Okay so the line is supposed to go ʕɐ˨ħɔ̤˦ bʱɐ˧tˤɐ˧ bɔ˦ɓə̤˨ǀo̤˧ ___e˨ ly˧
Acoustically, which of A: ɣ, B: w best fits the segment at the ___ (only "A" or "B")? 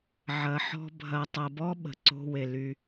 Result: B